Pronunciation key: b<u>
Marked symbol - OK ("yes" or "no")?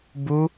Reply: yes